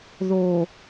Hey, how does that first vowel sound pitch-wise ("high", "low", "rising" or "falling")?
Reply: low